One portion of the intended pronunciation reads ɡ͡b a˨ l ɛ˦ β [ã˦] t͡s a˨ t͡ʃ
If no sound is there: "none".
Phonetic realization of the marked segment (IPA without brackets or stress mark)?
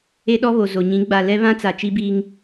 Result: ã˦